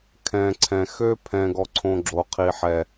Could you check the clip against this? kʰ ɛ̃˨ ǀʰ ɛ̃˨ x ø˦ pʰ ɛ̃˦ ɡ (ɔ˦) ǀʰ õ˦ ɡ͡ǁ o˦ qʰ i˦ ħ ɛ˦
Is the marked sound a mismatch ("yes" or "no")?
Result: no